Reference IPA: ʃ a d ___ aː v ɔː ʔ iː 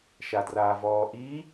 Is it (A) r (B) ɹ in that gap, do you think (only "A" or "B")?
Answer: A